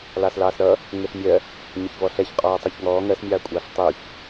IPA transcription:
lɑːslɑːsɾʌ | ŋɪɬmʲɜ | ɲɪçvɔɬɛçqʼɔː tˤɜçŋɔː ŋɜsmʲɑːkʷʼɑːɬ tˤuç

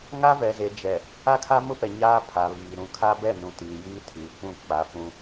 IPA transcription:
ŋa˦vɛ˨ze˨ d͡ʒɛ˨ | a˦kʰa˦mʊ˦pɛ˨ ɲaː˦pʰa˨βiː˨ ɾũ˨kʰa˦ bɛ˦˨nũ˨ tiː˨jiː˦tʰiː˨kʷũ˦˨ k͡pa˨˦ fũ˦

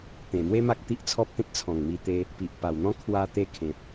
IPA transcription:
t̪ẽ˨˩mwe˦ ma˦k̚t̪i˦ʔt͡sʰɔ˦p̚t̪ẽ˦t̚ t͡sʰɔ̃˨˩ŋmi˧t̪e˧ | pi˨ʔ pa˨˩wn̪ɔ̃˦ kʰwa˧t̪e˧kʰẽ˨p̚

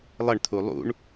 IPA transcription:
lˠəɳt̪ʰu lˠṵɳ

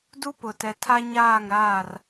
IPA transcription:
du˦pʊ˨tɛ˨ tʰa˦ ɲaː˦˨ŋɾaː˦˨r

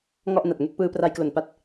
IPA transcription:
ŋɔ˥˩ʔna˨˩t̚ ŋe˥˩k̚pɯː˧pra˧jklo˨˩n pa˥˩t̚

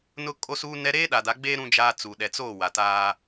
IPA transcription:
nʊ˦kʼo˦suː˦ nɛ˦ ɾeː˦ɗa˨da˨˦ɡ͡beː˦ ɾũ˦d͡ʒaː˦t͡su˨ ɗɛ˨t͡soː˦˨ wa˨taː˦

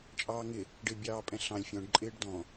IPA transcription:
t͡ʃʼɑːŋɪ | ɖɪːbʲɑːpʼɛ̃ɬɑ̃lʲ fʲɔ̃ɖ ǃʼɪːɖdɔ̃

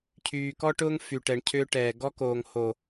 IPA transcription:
cʰyː˨kɔ˧ʈʊː˧ŋ fy˨ʈɛ˨ɳ cʰʏː˧ʈɛː˨ ɡɔ˧koː˨ŋ ho˨

